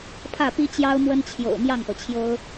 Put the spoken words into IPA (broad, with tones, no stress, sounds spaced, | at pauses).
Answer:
pʰ ä˥˩ p i˥ t͡ɕ j ɑ˥ ʊ̯ m w ə˥ n t͡ɕʰ j o̰˨˩ ʊ̯ m j ɑ˥˩ ŋ p ɤ˩ t͡ɕʰ j o˥ ʊ̯